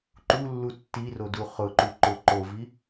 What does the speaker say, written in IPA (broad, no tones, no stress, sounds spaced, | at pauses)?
ǃ u lː u tː i r o d u χ ʊ ǃ u ǃ ʊ ǃ o v i